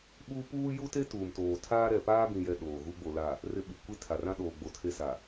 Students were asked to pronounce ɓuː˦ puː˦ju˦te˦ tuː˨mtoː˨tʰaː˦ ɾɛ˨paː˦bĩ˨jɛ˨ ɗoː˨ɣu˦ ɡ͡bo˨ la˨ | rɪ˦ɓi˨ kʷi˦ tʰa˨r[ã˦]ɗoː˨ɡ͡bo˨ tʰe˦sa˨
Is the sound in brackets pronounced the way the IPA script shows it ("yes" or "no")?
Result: yes